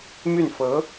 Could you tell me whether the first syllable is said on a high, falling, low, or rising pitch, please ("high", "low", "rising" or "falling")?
falling